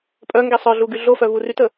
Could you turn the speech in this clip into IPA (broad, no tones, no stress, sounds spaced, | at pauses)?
pʼ œ ŋ ɡ e sˤ œ ɮ u ɡ y ɮ o f œ v u r y t ə